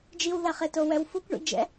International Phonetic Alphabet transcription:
d͡ʒiwðaχeto wɛwfukʷɳḭd͡ʒɛ̰

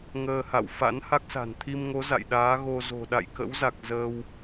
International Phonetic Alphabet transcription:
ŋəː˧ha̰˧˨w fa̰˧˥nha˦˥k̚sa̤˨˩n t̪ʰi˧mŋo˨˦ za̰˧˨jɗaː˨˦ ɣo˧zo̤˨˩ ɗa̰˧˨jkə̰˧˥wza˨˩k̚ zəː˧w

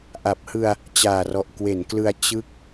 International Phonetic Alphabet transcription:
ʔa˨˩p̚hɯ˧a̯ | t͡ɕaː˨˩rɔ˨˩ʔ kwe˩˦nklɯ˧a̯ t͡ɕɯ˦˥k̚

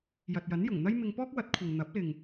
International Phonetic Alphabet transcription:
jɐ˨t̚jɐ˨˥njʊ˨˩ŋn̪ɐ˥j mɪ˧ŋpɔː˥k̚ wɐ˨˥t̚kʷʰɐ˨ŋ n̪ɐ˨˥p̚lɪ˨ŋ

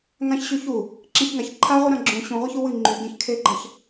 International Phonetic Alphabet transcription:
ŋãçɕy çu | ǁẽçŋaç ǃʰaʁʷɨ ɾãɡ͡ǁũ ɕũʁʷaç uwɨ ŋ͡ǃyɡẽçkʰeɡ͡ǃaç

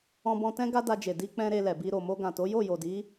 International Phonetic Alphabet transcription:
ɔ̃˧bɔ̃˧tɛ̃˦ ɡa˦da˧d͡ʒe˨ di˧k͡pɛ̃˧ ɾe˧lɛ˨bi˧ ɾo˨mo˧ɡã˨to˨˦ jo˦˨jo˨di˨˦

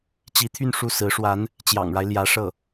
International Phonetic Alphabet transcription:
t͡ɕi˧˥t̪ʰy˥˧n ʂu˥˩sɹ̩˧˥ʂwa˧˥n | t͡ɕjɑ̰˨˩ŋɻa˦ɪ̯ ljä˧˥ ʂɤ˥˩

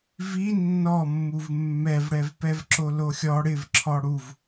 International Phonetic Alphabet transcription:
vi nːɔmːuv mːɛvɽɛvpɛv ǁoloxʲɔ ɽɪvǁʰɔ ɽuv

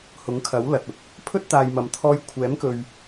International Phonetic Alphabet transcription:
hʊ˨˥ŋkʰɐ˨˥wlɐ˨t̚ʊ˧k̚ | pʰɵ˥t̚t̪aː˨jmɐ˨mt̪ʰɔː˧j kʷʰɛː˨˥mkɵ˨ɥ

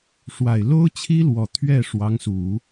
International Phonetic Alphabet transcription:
ʂwa˨˩ɪ̯ lo˥ʊ̯t͡ɕʰi˥lwɔ˨˩ t̪ʰɥɛ˥˩ ʂwɑ˧˥ŋsu˨˩˦

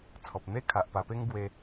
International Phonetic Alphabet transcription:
t͡sʰɔ˨p̚ n̪e˦ kʰa˨ʔpa˧pe˦ŋ ɡwe˧

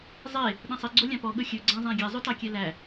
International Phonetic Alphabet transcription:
zˤe | ɗɛ̃sˤi ɡ͡ǀolʲɑ̃pɔ ɠɵxʲɵ ɡ͡ǀæ̃zˤæ̃ɡʲɛ zˤʉtɑkʲɛlæ

